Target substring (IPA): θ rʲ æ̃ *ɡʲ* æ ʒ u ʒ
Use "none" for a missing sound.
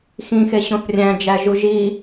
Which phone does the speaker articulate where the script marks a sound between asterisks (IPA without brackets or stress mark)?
d͡ʒ